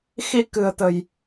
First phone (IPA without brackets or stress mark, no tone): x